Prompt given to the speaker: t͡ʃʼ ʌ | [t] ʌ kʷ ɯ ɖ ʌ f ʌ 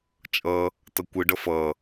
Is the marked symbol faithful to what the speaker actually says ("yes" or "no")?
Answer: yes